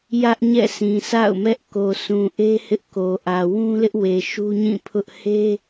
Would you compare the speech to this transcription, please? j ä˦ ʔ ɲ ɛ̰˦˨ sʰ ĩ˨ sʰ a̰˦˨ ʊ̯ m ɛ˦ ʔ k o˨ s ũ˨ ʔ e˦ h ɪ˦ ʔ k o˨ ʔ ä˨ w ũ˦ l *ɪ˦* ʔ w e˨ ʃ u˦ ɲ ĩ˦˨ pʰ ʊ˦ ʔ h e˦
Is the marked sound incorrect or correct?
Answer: correct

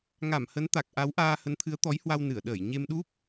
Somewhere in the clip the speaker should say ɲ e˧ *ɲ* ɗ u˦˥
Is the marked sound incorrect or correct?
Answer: incorrect: m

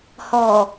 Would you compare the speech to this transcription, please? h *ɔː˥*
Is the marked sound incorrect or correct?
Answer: incorrect: ɔː˨˩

